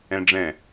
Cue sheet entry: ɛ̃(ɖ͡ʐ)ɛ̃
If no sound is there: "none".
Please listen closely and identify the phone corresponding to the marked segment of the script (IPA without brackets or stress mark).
ɖ͡ʐ